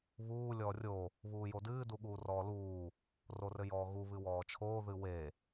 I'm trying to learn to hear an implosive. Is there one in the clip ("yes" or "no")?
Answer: yes